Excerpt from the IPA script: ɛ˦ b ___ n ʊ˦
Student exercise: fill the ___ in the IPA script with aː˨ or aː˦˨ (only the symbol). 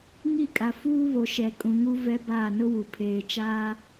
aː˦˨